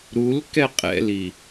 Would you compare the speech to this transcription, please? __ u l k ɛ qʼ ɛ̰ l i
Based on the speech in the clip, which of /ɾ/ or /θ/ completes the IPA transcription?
ɾ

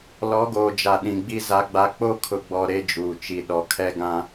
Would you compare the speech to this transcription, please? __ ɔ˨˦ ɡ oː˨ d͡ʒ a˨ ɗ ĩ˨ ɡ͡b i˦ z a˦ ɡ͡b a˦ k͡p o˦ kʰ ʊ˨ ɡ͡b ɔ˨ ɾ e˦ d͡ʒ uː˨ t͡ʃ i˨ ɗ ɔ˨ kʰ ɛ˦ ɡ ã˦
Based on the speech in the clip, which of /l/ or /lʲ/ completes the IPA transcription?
l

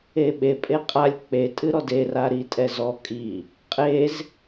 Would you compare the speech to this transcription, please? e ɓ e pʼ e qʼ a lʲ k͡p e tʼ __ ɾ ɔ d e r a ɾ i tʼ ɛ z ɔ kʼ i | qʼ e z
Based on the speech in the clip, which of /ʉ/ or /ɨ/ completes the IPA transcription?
ɨ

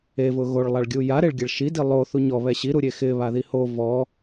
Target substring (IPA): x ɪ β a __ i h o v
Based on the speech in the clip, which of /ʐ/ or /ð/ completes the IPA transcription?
ð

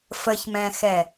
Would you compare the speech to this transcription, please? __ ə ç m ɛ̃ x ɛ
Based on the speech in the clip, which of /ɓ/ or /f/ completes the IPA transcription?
f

